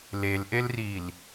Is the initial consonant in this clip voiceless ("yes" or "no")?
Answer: no